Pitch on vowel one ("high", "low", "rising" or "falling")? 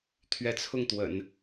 rising